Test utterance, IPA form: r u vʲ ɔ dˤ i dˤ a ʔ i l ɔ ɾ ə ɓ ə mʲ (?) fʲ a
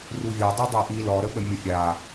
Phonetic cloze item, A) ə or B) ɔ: A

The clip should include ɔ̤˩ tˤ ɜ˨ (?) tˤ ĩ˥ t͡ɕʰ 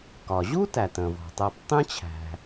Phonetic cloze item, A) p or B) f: A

